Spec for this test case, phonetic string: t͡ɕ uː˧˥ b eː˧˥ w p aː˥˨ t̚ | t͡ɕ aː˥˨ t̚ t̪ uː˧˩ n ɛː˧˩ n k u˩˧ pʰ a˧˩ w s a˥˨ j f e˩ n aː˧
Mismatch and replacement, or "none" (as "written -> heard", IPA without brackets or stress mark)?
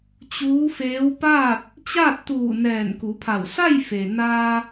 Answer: b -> f